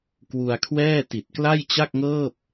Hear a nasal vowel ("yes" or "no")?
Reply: no